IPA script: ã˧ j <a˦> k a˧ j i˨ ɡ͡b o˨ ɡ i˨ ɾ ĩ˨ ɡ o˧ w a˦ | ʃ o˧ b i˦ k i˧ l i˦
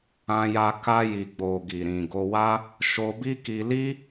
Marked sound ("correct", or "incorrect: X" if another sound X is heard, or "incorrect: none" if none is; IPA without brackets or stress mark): incorrect: a˧